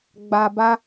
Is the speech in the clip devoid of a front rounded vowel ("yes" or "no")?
yes